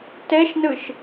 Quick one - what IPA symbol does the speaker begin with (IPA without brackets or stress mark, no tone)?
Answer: t